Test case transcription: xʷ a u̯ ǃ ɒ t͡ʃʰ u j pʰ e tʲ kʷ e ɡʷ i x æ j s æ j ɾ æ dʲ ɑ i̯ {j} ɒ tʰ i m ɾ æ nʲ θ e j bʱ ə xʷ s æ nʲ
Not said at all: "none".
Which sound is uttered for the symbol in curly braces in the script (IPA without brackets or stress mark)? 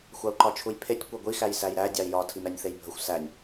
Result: j